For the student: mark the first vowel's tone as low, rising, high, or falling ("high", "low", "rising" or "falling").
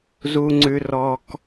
high